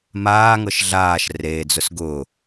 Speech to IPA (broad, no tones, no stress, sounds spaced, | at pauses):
m aː ŋ ɤ ʃ ɮ aː ʃ r eː d͡z ʊ s ɡ ʊː